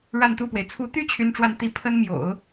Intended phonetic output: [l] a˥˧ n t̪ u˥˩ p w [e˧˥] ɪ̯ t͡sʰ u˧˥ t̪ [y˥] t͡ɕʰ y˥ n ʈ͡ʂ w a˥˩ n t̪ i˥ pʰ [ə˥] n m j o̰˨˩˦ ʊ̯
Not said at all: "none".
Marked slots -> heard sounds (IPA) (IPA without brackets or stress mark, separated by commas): ɻ, e˩, y˥, ə˥